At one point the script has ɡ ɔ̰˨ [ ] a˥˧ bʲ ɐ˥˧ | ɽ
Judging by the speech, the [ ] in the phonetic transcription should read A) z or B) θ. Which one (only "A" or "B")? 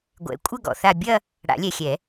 B